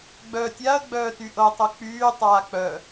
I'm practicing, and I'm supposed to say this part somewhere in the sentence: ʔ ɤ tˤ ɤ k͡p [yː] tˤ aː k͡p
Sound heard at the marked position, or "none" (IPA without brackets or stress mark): yː